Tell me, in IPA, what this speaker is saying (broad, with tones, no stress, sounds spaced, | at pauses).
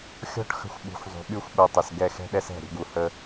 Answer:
xʲ ɔ̤˦ ʈ x ə̤˧ xʷ ɓ ṳ˨˦ xʷ zˤ ṳ˨ ɓ y˦ xʷ ɓ u˨ tˤ ə˨ s ɡ ɛ˧ x ɛ̤˦ ɗ ɛ˦ s ɛ̤˦˨ ɾʲ ə̤˦ ɡ u˧ h ə˦